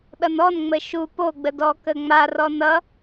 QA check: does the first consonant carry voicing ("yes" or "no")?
yes